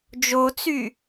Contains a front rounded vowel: yes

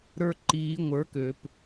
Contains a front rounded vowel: yes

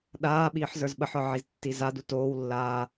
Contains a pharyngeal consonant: yes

